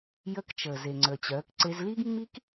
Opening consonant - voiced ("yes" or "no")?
yes